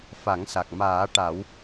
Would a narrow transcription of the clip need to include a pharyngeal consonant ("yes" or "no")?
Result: no